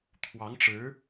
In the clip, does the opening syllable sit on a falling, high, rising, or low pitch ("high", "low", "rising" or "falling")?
rising